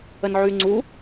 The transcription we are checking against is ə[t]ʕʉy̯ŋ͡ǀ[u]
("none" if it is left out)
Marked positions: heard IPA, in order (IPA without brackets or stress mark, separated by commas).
n, u